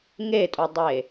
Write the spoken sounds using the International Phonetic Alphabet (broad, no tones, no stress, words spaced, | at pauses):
ŋetʼudˤe